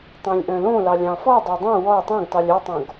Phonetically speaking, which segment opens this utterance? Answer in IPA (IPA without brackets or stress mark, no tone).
tˤ